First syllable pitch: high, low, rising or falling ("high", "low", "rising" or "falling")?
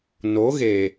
rising